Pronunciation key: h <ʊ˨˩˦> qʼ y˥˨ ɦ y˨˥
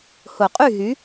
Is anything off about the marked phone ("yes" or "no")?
no